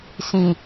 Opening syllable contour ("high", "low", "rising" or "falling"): low